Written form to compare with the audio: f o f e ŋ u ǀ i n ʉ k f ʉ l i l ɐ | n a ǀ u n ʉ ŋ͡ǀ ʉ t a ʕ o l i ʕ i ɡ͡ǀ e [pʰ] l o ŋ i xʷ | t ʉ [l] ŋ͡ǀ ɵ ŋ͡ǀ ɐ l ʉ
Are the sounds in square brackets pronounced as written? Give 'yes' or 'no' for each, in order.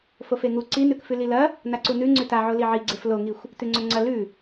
no, no

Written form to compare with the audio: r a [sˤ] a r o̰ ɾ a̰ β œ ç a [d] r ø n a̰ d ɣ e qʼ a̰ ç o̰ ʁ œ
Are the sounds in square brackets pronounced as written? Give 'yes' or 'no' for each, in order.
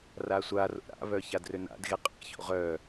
no, yes

